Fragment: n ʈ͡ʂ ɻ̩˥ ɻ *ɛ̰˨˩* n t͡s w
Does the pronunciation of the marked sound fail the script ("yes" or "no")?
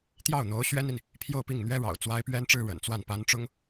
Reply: yes